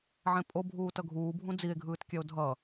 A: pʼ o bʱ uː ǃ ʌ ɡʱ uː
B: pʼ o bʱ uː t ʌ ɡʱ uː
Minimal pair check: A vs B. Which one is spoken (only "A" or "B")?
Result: B